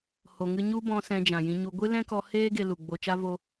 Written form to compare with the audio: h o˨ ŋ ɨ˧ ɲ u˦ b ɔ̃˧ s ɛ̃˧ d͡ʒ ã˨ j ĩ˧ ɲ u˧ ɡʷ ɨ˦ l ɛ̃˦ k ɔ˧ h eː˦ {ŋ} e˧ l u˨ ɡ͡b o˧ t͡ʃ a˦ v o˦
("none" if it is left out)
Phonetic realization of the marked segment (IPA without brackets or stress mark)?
ɡ